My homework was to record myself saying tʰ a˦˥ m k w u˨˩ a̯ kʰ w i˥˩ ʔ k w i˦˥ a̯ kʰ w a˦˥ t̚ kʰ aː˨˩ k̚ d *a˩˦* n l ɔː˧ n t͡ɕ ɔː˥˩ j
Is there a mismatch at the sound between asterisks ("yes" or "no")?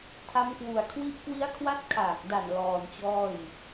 yes